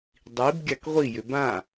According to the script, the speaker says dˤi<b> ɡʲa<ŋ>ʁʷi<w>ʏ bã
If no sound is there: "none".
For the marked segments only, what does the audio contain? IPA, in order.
b, k, j

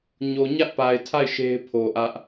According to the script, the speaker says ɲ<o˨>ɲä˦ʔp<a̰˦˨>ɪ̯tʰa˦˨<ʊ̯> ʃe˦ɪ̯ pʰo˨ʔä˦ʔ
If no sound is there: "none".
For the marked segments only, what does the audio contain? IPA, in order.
o˨, a˨, ɪ̯

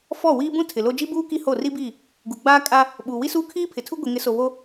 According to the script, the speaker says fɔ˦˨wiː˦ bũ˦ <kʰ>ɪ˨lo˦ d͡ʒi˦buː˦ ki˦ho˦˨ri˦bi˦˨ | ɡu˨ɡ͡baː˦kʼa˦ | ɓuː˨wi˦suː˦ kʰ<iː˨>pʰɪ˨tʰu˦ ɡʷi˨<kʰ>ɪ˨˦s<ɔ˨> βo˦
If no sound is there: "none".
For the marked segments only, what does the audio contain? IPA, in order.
tʰ, iː˦, ŋ, o˨

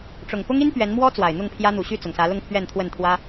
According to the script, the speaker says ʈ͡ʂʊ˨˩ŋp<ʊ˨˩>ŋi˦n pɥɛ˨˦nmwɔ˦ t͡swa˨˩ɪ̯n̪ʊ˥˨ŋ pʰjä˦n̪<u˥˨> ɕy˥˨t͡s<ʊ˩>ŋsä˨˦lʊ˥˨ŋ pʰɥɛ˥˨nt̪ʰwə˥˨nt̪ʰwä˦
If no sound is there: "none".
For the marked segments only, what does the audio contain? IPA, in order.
ʊ˦, u˨˩, ʊ˩

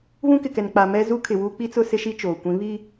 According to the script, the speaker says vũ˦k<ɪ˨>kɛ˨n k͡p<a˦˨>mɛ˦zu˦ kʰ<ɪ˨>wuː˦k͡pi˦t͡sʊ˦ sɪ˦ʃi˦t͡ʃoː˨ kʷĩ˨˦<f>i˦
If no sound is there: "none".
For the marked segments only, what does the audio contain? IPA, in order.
ɪ˨, a˨, ɪ˨, β

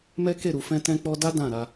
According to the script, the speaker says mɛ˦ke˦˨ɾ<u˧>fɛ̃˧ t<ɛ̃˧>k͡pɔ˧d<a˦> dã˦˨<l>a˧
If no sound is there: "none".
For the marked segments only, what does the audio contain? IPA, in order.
u˨, ɛ̃˧, a˦, ɾ

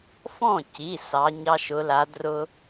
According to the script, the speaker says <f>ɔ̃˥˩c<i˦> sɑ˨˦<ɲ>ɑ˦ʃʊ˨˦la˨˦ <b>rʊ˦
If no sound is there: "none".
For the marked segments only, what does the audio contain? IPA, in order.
f, i˩˧˩, ɲ, d

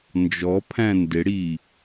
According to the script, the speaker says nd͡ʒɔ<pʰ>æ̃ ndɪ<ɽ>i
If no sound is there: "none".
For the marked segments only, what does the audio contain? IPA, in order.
pʰ, ɽ

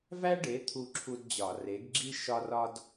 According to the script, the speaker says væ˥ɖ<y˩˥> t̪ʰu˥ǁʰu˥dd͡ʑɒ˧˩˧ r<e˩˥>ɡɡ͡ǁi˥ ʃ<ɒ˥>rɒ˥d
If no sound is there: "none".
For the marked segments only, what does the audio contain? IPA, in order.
e˩˥, e˩˥, ɒ˥

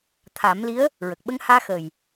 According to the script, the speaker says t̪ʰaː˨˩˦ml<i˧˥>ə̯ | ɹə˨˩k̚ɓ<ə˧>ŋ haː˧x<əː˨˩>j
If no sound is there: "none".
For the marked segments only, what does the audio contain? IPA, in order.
i˧˥, ə˧, əː˨˩

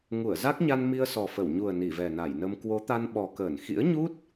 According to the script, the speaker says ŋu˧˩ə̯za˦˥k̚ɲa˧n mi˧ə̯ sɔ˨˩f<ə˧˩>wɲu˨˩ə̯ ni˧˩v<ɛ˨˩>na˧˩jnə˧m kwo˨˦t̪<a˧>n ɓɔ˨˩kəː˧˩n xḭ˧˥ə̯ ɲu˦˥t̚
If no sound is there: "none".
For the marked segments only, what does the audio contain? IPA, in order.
ə˧˩, ɛ˨˩, a˧

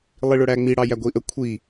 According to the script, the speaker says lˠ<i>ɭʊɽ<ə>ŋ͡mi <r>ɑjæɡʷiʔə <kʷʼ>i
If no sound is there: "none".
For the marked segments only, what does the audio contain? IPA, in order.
i, æ, ɽ, kʷʰ

